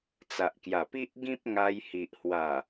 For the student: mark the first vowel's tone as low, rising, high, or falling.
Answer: low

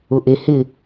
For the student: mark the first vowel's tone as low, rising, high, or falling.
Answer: low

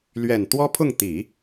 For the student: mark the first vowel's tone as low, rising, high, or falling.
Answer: low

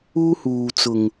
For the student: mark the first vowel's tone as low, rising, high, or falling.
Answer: high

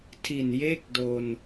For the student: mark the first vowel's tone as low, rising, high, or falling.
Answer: low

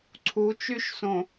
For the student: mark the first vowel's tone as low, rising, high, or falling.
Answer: rising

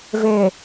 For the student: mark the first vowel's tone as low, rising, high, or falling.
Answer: low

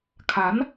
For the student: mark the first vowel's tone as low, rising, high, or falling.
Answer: rising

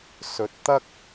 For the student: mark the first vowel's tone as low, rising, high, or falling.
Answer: low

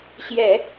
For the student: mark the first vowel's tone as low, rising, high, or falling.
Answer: low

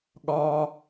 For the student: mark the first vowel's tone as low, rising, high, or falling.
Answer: high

